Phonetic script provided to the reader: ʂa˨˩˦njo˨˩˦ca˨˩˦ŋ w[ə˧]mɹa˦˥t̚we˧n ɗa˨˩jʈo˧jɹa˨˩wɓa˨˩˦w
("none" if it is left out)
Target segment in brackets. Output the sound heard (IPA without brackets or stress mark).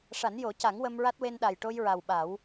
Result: ə˧